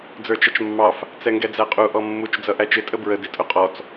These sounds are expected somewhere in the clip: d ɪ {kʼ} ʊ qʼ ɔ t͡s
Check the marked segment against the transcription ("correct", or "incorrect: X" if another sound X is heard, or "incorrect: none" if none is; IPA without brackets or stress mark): incorrect: tʼ